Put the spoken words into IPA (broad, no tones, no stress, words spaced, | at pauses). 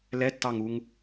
lɛtːɑŋuŋ